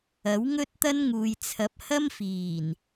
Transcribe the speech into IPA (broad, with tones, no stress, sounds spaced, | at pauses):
ɐ˨˥ w ŋ ɵ˥ t̚ t̪ ɐ˥ n ŋ uː˨ j t͡sʰ ɐ˨˥ p̚ h ɐ˥ m f iː˨˩ n